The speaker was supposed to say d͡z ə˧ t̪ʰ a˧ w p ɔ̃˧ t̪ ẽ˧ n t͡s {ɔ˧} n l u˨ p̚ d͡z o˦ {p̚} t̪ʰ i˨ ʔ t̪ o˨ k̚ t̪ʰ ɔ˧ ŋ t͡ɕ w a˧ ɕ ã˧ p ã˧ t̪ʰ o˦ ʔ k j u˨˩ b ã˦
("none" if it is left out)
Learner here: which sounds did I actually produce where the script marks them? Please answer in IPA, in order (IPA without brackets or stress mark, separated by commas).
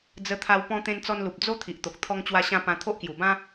ɔ˧, none